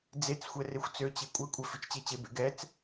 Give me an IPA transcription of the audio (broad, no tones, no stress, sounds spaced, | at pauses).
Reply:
d͡z e t͡s xʷ ɛ r e xʷ t͡s ø t͡ɕ e kʷʼ ɛ kʷʼ ɛ f i t͡ʃ t͡ɕ e t͡ɕ e b ḛ ɡ ɛ t͡s